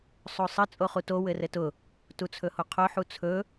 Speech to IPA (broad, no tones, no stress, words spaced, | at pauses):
sˤosˤɘ t͡sʼoχuto wɘrɘtʊ | tut͡sʰɵhoqʰo ħut͡sʰɵ